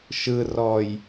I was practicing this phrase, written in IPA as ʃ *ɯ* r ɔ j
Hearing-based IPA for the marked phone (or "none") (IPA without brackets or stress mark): ɯ